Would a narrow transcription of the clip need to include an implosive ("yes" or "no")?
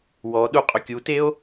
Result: yes